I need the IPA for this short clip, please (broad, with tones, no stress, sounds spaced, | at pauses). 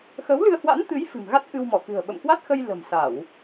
x ə˨˦ w l ɨ˧ ə̯ h w a̰˧˥ n t̪ ɨ˨˦ j f ɨ̤˨˩ m ɣ a˦˥ t̚ ʔ ɨ˧ w m ɔ˧˩ k ɨ̤˨˩ ə̯ ɓ ə̰˧˨ m k w a˦˥ t̚ x ə˧ j l ə̤˨˩ m s a˧˩˨ w